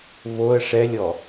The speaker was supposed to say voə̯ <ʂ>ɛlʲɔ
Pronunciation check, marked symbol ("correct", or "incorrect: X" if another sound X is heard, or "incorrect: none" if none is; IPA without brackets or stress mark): correct